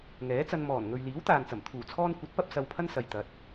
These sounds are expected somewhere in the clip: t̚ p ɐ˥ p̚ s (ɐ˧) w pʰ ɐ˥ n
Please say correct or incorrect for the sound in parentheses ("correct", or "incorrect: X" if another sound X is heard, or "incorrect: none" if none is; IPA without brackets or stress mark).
correct